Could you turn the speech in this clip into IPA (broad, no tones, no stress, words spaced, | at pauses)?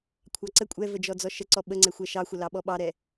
kʷʰɑǀə kʷʼɛvəd͡ʒɔ d͡zɔʃəǀɔ ɓəŋ͡ǀɛxʷɛ ʃɑxʷəlɑɓɔ ɓɑɾɛ